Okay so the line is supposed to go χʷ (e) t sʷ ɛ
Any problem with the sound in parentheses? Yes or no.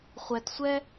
yes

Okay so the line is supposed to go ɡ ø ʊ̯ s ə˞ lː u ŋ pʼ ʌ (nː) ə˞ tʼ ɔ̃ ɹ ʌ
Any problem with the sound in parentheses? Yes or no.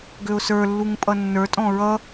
no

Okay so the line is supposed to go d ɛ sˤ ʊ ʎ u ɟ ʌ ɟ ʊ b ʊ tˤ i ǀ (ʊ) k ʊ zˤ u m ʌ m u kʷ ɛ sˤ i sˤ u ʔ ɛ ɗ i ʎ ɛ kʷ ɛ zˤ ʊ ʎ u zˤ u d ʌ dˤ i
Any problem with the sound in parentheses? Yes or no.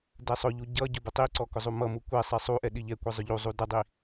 yes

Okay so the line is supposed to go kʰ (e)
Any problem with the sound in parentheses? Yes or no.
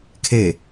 no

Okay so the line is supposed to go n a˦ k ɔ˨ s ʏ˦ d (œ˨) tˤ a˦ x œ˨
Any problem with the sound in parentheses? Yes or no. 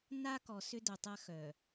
no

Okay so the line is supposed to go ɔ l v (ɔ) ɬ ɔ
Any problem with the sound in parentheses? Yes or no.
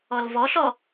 no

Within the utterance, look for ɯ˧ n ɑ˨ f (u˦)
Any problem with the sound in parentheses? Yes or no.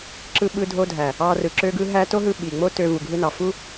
no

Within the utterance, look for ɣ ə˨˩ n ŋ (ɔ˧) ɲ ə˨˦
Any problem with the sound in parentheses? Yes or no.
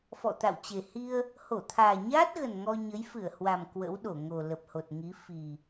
no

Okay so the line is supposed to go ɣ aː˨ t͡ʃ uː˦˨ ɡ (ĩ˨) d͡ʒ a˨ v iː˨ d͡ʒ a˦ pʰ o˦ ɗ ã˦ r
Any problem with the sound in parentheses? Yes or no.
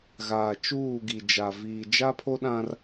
yes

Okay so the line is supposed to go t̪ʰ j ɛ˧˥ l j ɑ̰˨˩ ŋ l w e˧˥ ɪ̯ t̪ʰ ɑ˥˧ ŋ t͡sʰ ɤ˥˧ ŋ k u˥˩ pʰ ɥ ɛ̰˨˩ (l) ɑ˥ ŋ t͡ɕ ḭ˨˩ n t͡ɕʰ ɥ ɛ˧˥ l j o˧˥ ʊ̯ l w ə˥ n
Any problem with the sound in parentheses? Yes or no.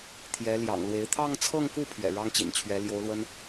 yes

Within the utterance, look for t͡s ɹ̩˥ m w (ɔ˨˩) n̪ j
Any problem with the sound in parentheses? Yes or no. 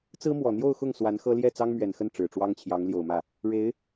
no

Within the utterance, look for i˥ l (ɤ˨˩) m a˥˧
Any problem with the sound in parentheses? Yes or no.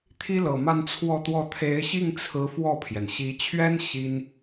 no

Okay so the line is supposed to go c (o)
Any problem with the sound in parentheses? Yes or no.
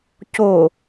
no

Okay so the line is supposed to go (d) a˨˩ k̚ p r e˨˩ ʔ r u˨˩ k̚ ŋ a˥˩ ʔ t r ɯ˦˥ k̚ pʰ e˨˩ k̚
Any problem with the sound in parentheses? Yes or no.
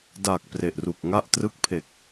no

